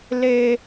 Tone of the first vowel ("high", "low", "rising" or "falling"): high